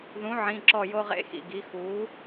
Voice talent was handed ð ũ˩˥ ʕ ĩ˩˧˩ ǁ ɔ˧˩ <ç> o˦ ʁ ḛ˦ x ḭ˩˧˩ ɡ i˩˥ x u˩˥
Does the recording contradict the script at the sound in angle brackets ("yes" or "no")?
yes